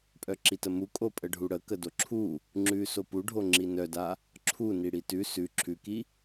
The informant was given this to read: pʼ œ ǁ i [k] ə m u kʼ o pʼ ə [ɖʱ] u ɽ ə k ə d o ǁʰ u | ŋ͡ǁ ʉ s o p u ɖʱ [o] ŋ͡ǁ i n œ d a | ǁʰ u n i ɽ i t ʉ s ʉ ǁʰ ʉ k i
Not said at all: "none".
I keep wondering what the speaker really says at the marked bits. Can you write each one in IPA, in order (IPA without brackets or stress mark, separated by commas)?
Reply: t, ɖʱ, o